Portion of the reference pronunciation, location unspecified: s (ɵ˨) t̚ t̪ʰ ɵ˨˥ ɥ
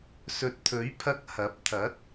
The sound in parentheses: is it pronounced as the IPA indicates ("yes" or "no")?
yes